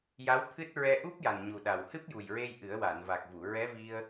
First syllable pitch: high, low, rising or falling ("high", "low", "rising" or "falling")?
rising